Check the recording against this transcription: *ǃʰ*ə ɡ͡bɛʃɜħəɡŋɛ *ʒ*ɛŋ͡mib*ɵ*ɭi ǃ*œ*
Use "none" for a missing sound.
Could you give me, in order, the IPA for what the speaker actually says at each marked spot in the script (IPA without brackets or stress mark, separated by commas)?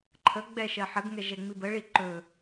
ǃʰ, ʒ, ə, ɵ